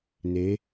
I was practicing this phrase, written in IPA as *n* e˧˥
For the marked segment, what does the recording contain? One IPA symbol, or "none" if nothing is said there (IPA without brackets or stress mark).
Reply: n